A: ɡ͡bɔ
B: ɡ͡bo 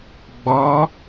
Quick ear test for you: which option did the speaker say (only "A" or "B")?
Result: A